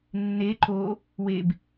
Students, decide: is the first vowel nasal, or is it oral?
oral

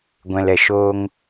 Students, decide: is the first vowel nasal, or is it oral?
nasal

